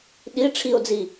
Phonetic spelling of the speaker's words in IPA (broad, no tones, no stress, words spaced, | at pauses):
ɗi ʈ͡ʂʰio̯d͡zi